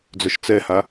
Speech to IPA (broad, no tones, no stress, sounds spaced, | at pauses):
d͡z œ ʃ t͡s ɛ h a